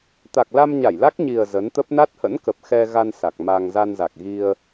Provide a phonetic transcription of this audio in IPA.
t̪ a˨˩ k̚ l a˧ m ɲ a˧˩ j l a˦˥ k̚ ɲ i˨˩ ə̯ z ə˨˦ n t̪ ə˦˥ p̚ n a˦˥ t̚ h ə̰˧˥ n k ə˨˩ p̚ x ɛ˧ ɣ a˧ n s a˨˩ k̚ m a˧ ŋ z a˧ n z a˨˩ k̚ ɣ i˧ ə̯

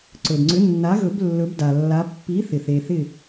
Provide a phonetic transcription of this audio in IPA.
ǀ ɵ˩ d ŋ͡ǀ ʏ˨˥ nː a˨˥ ɣ ɵ˨˩˦ b lː ɵ˨˥ b d a˩ lː a˨˥ pː i˨˥ θ ɪ˩ θ e˩ θ ɪ˥˩

